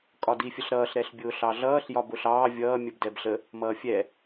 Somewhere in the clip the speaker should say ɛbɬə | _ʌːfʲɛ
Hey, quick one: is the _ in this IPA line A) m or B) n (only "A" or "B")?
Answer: A